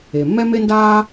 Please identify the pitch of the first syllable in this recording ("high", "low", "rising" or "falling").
low